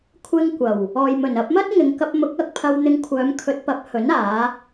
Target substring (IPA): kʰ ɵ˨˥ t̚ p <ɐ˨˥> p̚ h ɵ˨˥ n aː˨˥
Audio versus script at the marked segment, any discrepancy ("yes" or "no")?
no